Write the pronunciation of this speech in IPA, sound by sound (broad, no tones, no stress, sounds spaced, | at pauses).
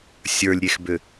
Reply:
sʲ ə˞ lʲ ɾʲ e x b ʏ